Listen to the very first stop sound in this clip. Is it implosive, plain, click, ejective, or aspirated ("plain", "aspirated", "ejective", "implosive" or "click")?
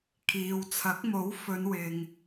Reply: aspirated